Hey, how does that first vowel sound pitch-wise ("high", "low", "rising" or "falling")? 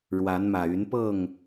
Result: rising